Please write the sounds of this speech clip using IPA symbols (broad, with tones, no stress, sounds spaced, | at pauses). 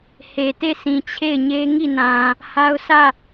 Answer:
h e˨ t e˦˨ s ĩ˨ t͡ɕʰ e˦˨ ɪ̯ ɲ e˦ ŋ i˦˨ n ã˨ | h a˦ ʊ̯ s ä˦˨